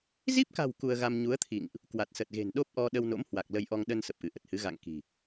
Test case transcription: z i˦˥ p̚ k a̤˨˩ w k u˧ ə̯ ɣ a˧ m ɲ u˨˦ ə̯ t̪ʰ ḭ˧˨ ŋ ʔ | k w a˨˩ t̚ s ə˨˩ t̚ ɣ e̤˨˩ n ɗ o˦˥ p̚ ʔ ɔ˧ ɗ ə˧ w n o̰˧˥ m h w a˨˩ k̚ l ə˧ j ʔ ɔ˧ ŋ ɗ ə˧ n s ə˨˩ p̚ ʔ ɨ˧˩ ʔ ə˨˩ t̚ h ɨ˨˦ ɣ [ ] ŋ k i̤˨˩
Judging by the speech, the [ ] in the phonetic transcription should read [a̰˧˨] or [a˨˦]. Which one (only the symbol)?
a̰˧˨